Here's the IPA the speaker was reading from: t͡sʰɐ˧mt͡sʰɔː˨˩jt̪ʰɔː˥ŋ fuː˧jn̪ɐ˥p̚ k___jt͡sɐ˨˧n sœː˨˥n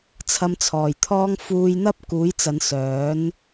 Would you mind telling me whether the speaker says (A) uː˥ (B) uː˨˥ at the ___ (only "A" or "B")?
B